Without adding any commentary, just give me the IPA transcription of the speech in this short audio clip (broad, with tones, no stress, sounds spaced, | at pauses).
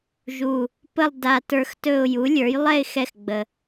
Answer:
ʒ u˧˩ | p ə˥˧ lˠ d a˧ t ə˞˧ x t ɵ˥˧ ʊ̯ j u˩˥ lʲ ə˞˩˥ j lˠ ɛ˥˧ ɪ̯ x ɛ˧˩ x ɡ͡b ə˩